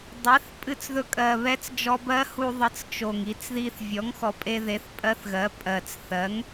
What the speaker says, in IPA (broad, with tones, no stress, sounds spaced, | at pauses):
dˤ ɛ˩˥ θ pʼ ɨ˧ t͡s ð ɵ˧ kʼ ɜ˨˩ β ɛ˧˥ t͡s d͡ʒ ɔ˧ b ɜ˧˥ h u˧ ðˤ ɨ˩˥ t͡s t͡ʃ o˨˩ ŋ i˧ t͡s ð i˧ θ vʲ ɔ˩˥ ŋ x ɔ˨˩ pʼ e˧ ð e˩˥ θ pʼ ɜ˧˥ θ ɣ ɜ˩˥ pʼ ɜ˨˩ t͡s θ ɜ˩˥ ŋ